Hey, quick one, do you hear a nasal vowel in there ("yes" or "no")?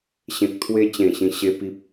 yes